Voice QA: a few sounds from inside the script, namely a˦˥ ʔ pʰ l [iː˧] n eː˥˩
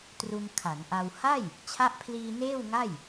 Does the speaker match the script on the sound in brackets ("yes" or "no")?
yes